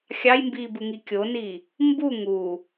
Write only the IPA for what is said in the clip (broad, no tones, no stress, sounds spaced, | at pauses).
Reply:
xʲ ɑ j m b iː b ɯ ŋ i kʲ o n i | m b u ŋ u